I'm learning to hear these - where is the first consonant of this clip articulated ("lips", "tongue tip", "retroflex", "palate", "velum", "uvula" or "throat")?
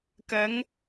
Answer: velum